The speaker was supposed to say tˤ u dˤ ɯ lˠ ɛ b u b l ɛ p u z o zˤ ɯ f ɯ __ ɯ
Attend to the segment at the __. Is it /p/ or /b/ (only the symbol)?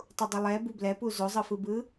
b